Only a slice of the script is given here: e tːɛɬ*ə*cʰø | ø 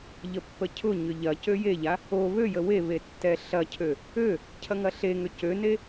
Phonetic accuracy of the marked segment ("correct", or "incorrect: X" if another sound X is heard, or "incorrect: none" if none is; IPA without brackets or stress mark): incorrect: ɐ